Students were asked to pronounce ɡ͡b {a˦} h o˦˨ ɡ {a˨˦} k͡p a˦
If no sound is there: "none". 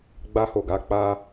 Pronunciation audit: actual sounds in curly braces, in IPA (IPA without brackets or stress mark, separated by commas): a˦, a˨˦